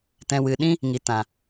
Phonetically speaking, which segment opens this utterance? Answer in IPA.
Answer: t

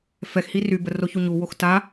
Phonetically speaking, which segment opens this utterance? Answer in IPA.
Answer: f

